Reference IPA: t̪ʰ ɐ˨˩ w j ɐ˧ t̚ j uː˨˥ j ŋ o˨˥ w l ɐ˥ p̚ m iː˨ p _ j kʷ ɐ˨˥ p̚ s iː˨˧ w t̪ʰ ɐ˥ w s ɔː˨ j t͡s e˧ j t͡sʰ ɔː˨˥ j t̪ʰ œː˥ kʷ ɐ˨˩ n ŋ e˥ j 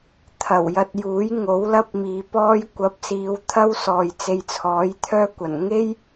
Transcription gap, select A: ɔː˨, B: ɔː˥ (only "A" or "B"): B